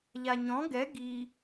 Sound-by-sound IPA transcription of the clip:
ʎ a ɲ ɔ̃ ɡ ɛ ɡ i

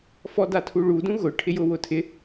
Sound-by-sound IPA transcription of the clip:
f ɔ d a tʰ u ɭ u d ũ ɣ ʊ ʈʰ ɪ j ʊ w ʊ tʰ ɪ

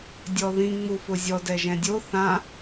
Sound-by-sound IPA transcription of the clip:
dʲ ɔ ð ĩ ŋ͡m u f ʊ zʲ ɔ d ɛ ʒ ɛ̃ dʲ o θ ã

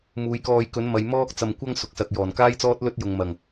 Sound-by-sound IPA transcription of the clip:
m uː˨˧ j k ɔː˧ j k ɵ˨˥ n m ɐ˨˧ j m ɔː˥ k̚ t͡s ɐ˧ m kʷ ɐ˥ ŋ s ʊ˨˥ k̚ s ɐ˨ k̚ j ɔː˨˩ n k aː˥ j t͡s ɔː˥ t̚ l ɵ˥ t̚ j ʊ˨ ŋ m ɐ˨˩ ŋ

